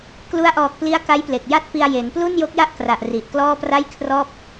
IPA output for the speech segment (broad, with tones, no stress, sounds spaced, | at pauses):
k l u˦˥ a̯ ʔ ɔː˨˩ k̚ p l i˦˥ a̯ k a˦˥ j p l e˨˩ k̚ j a˥˩ t̚ p i˧ a̯ j e˩˦ n p l u˥˩ n j o˦˥ k̚ j a˥˩ ʔ k r a˨˩ ʔ r i˨˩ ʔ k l ɔː˥˩ p r a˥˩ j kʰ r ɔː˥˩ p̚